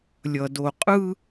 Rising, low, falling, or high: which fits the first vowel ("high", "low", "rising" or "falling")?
low